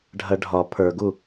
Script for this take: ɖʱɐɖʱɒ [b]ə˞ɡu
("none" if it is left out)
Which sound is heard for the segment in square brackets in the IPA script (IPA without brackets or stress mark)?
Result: pʰ